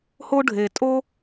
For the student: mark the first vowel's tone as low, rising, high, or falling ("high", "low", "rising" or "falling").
high